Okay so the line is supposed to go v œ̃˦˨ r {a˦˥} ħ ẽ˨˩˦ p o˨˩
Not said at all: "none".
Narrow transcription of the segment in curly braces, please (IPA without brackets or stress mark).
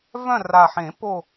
a˨˩